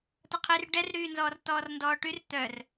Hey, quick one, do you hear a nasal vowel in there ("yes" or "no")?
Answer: no